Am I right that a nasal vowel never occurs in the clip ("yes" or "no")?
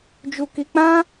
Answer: no